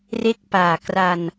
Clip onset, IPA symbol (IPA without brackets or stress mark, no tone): r